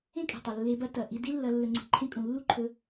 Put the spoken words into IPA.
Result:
ẽ˦ kʼ e̤˨ tˤ ɐ˨ lː e˧ b ɐ˦ t ɐ˨ ʔ i˧ d i˦ lː ɐ˧ lː ɵ˧ ŋ͡ǀ e̤˧ ǃʰ ẽ˦ kʼ ũ˨ lː u˦ ǃʰ ɵ˧

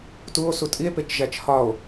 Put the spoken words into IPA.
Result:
t u o̯ s u tʼ i e̯ p e t͡ʃ ʒ æ t͡ʃ h ɒ o̯

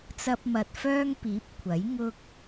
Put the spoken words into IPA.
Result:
t͡s ɐ˧ p̚ m ɐ˨ t̚ f œː˥ ŋ p iː˨˥ p̚ kʷʰ ɐ˨˥ j ŋ ʊ˧ k̚

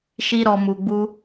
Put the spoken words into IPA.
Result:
ʃ i˦ ɾ ɔ˧ m u˧ ɡ͡b u˦

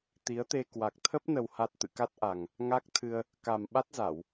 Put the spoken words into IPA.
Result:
t̪ i˨˦ ə̯ t̪ e˧ k w a˨˩ k̚ t̪ʰ ə˦˥ p̚ n ə˨˩ w h a˨˩ t̚ t̪ ɨ̰˧˨ k a˦˥ t̚ ʔ a˨˩ ŋ | ŋ a˦˥ k̚ t̪ʰ ɨ˧ ə̯ | k a˨˩ m ɓ a˦˥ t̚ z a˧˩˨ w

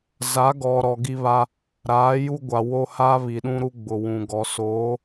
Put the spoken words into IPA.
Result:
z a˨˦ ɡ ɔ˨ ɾ ɔ˨ ɡ i˦ β a˦ | ɾ aː˨˦ j u˦ ɡʷ a˨ w o˦ h a˦ β i˨ ɗ ũ˦ ɾ u˦ ɡ͡b ʊ˨ w ũ˨ ɡ ɔ˨ s oː˨˦

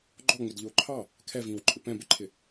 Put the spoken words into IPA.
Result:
ɡ͡ǃ ɔ ŋ͡m ɪ d ʎ ʊː ǃʰ ɑ | kʰ ɛ v ĩː w ǃʼ ɪ p ɛ̃ b ɪ ǃʰ ɪ

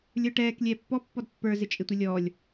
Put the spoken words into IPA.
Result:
lʲ ə˞ ʈ ɛː k lʲ ɛː pː ɔ pː ɔ d pː ə˞ z ɪ t͡ʃʼ ɪ tʷ ɪ lʲ ɔː lʲ

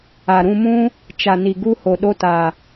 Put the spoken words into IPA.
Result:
a˨ ɾ ũ˧ m ũ˦ | t͡ʃ a˨ n i˨ ɡ u˧ h o˨ ɗ o˧ t a˨

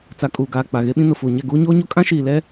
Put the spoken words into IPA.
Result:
t͡s a˨ kʼ uː˨ ɡ aː˨ k͡p a˨ ɣ e˦ ɓ ĩ˦ n ʊ˨ f uː˨ ɲ ɛ˦˨ ɡ uː˦ ɲ oː˦ ɲ o˦ kʼ ã˦ ʃ iː˨ l ɛ˦

